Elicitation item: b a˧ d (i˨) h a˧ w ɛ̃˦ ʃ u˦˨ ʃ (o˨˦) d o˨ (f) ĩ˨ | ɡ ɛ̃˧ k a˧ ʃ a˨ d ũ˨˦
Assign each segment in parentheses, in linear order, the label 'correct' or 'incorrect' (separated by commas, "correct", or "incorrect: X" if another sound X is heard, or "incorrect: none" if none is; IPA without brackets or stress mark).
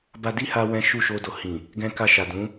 incorrect: i˦, incorrect: o˧, incorrect: h